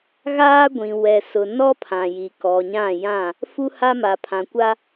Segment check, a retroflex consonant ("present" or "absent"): absent